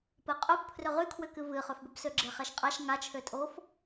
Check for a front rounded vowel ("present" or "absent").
present